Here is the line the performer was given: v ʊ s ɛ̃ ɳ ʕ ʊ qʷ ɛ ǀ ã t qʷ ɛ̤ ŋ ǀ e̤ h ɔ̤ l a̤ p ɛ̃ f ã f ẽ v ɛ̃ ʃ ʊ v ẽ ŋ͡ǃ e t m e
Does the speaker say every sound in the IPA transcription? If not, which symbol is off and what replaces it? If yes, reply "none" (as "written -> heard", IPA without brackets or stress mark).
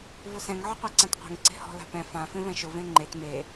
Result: ɳ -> ŋ